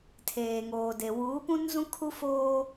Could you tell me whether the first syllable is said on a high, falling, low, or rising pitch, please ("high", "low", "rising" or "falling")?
low